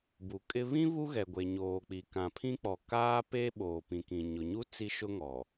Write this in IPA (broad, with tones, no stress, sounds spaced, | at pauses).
b u˨ kʼ ɪ˦ β ĩ˦ β u˦ ɣ ɛ˨ ɡʷ e˨ ɲ oː˨ k͡p i˨ k ã˨ pʰ ĩ˦ k͡p ɔ˨ k aː˦ p eː˦ ɓ oː˨ p ĩ˨ k ĩ˨ ɲ ʊ˨ ɲ u˦ t͡s i˦ ʃ ʊ˦ ŋ ɔ˨